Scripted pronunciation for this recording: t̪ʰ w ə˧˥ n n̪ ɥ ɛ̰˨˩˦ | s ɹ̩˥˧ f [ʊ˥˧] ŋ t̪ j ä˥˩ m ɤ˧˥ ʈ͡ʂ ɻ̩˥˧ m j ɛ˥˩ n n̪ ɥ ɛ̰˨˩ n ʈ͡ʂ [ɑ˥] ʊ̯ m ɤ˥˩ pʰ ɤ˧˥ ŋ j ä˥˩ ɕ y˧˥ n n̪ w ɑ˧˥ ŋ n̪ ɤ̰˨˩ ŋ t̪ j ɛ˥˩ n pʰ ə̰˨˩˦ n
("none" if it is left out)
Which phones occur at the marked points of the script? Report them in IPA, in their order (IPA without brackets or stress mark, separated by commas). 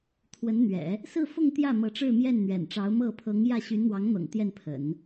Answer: ʊ˥˧, ɑ˧˥